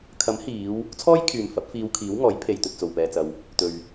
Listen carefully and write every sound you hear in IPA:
kʰ ɐ˨˥ m h iː˨˧ w | t͡sʰ ɔː˥ j kʰ yː˨ m f ɐ˨˥ p̚ f iː˧ w kʰ iː˨˥ w ŋ ɔː˨˥ j pʰ e˨ j t̪ ɵ˨ t̚ t͡s o˨ w p ɛː˧ t͡s ɐ˧ w | t̪ ɵ˨ ɥ

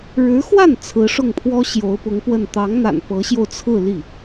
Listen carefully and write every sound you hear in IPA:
ɻ ɻ̩˧˥ x w a˥˩ n t͡sʰ ɹ̩˧˥ ʂ ʊ˥˩ ŋ pʰ w ɔ˥ ɕ j o˧˥ ʊ̯ p ʊ˧˥ ŋ p w ə˥˩ n t̪ ɑ˧˥ ŋ n̪ a̰˨˩ n p ɤ˧˥ ɕ j o˧ ʊ̯ t͡sʰ ɹ̩˥˧ l i˥˩

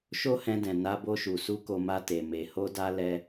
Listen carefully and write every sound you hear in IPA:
ʃ o˦ h ɛ̃˧ d ɛ̃˨ n a˧ b o˧ ʃ u˨ s u˧ k o˧ m a˧ t e˨ m e˨ h o˧ d a˧ l ɛ˦

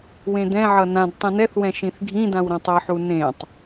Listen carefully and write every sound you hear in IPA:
w ẽ d̪ ɛ̃ ʕ ʌ n ã d tˤ ĩ n ɛ θ w ɛ̃ ʃ ĩ θ ɡʱ ĩ d ã w ɾ ɛ̃ tˤ ʌ ħ u n ẽ tˤ

